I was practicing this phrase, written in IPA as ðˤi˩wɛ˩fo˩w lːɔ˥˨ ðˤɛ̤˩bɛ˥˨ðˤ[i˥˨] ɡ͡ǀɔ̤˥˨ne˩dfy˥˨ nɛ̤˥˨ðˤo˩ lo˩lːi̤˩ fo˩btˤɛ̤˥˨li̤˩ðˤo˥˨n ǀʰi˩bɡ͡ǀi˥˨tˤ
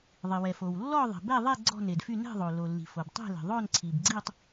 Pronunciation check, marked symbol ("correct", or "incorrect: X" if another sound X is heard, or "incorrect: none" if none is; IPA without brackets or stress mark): incorrect: e˥˨